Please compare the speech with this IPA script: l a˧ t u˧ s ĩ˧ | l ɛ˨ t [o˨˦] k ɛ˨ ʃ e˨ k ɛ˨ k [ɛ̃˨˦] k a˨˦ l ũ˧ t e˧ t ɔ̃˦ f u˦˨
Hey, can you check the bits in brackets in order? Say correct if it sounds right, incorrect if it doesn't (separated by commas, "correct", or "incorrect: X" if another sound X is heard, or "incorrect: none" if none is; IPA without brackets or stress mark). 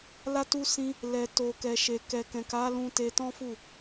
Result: incorrect: o˨, incorrect: ɛ̃˨